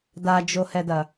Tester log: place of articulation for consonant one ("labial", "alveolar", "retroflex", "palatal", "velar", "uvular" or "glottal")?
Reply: alveolar